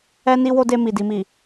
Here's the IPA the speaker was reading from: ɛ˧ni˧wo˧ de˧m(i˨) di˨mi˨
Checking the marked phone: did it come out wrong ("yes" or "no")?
no